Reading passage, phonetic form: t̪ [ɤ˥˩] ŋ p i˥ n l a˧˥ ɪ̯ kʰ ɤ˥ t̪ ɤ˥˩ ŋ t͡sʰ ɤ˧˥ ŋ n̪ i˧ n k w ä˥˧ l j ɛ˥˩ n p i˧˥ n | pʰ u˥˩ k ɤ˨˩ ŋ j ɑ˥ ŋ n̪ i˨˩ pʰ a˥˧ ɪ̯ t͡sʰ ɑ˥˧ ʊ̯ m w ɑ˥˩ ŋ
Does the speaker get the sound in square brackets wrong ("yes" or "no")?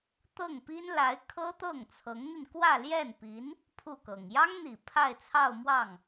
no